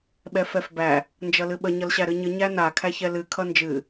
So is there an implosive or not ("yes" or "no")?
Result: yes